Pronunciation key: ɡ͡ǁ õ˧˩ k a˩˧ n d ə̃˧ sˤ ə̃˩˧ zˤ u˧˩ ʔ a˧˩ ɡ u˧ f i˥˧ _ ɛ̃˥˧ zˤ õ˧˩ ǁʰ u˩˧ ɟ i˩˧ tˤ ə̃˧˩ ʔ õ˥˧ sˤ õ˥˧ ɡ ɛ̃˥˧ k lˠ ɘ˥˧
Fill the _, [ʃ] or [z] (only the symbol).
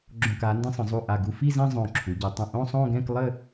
z